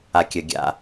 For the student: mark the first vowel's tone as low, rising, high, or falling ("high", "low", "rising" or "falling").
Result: low